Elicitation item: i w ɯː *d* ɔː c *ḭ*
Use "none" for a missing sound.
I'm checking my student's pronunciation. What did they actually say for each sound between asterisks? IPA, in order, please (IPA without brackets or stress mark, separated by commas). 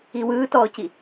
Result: t, i